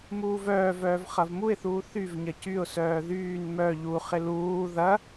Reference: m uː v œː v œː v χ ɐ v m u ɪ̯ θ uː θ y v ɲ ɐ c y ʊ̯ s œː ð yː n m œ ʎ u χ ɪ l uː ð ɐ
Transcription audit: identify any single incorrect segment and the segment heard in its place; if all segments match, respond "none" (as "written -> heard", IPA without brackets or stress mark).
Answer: none